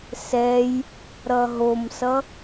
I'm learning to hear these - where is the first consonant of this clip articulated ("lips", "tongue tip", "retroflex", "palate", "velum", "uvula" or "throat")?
tongue tip